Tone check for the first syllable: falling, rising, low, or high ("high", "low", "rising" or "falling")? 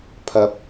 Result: low